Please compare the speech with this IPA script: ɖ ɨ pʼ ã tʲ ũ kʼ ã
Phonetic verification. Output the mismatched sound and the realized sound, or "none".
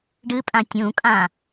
none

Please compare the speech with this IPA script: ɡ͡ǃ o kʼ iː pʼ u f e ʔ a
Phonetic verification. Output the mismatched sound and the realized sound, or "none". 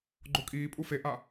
none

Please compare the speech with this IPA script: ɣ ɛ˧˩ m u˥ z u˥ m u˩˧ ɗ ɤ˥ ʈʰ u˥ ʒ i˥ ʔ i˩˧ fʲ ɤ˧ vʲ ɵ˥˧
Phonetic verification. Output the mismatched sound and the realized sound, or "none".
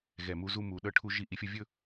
none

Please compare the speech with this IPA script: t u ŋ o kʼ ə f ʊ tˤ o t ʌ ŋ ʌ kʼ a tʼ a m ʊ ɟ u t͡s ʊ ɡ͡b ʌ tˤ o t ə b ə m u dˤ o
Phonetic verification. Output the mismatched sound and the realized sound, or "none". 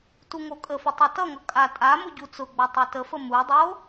b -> f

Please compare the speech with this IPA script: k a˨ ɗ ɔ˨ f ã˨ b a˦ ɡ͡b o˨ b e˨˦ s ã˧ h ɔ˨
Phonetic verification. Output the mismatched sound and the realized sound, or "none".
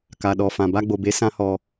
none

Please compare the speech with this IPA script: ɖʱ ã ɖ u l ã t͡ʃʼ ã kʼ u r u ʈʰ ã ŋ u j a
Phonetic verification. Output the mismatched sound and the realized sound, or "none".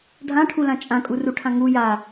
ɖ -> ʈʰ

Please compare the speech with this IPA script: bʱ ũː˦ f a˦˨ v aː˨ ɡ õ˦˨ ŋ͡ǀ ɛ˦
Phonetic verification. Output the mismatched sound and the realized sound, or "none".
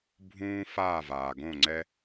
a˦˨ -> aː˦˨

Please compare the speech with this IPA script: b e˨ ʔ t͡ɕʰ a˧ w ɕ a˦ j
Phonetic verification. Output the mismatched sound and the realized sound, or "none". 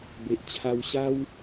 j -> w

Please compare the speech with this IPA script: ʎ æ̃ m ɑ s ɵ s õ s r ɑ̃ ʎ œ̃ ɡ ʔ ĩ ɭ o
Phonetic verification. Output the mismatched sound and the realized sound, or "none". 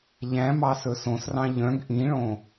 o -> õ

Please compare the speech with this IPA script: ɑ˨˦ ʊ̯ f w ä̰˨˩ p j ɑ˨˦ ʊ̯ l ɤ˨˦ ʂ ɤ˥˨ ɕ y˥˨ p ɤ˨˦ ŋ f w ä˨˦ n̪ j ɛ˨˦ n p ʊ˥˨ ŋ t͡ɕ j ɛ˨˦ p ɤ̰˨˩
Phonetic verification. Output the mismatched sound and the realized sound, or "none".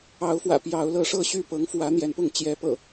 none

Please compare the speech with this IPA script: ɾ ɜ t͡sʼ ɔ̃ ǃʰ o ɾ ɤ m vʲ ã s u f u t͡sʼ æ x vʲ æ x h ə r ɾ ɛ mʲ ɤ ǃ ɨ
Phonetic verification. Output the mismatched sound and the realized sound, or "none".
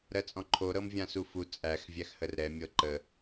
ɨ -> ə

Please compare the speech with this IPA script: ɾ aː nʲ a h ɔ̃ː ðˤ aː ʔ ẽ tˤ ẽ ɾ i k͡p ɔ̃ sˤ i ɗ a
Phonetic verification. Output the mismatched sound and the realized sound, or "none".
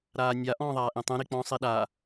h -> ʔ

